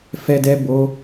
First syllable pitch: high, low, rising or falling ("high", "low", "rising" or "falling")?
high